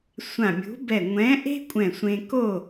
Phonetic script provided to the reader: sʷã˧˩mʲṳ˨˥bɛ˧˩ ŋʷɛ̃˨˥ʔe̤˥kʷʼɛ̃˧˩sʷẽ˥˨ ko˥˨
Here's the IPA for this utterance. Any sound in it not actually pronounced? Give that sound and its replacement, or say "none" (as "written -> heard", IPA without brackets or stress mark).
ẽ˥˨ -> ẽ˧